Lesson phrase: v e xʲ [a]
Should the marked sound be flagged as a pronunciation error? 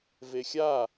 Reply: no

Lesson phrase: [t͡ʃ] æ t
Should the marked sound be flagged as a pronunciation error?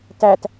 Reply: yes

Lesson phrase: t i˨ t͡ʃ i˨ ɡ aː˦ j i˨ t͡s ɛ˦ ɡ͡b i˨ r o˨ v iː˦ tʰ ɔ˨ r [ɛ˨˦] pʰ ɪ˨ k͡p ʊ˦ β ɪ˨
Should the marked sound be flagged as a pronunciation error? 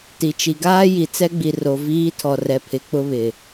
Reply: yes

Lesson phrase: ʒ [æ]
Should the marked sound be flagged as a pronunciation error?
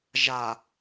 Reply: yes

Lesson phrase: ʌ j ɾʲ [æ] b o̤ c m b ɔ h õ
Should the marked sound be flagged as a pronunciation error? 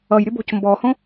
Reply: yes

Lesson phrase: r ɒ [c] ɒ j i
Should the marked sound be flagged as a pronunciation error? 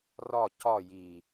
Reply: no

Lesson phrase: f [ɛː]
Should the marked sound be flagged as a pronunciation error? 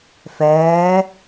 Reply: no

